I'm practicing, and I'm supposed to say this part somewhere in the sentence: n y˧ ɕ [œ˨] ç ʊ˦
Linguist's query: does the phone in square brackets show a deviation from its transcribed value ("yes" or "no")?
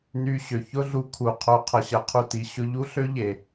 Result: yes